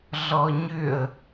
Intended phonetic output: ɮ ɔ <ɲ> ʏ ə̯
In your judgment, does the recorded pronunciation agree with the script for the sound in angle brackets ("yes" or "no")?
yes